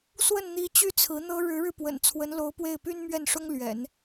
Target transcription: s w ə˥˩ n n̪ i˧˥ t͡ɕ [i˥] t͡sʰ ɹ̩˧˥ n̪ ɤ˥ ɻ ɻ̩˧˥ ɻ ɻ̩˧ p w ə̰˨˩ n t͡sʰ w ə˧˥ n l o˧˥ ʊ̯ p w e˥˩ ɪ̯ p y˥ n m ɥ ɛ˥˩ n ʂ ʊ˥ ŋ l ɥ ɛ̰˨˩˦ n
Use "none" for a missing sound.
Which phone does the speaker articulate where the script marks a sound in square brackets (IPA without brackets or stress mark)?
y˥